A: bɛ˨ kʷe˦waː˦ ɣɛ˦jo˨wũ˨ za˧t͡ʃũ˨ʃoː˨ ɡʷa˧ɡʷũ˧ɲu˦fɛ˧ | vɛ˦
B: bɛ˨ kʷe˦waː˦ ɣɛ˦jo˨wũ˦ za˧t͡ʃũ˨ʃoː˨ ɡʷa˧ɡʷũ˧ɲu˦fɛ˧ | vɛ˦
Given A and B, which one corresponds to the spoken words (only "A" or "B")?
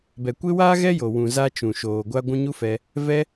A